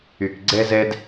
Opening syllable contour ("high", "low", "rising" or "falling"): low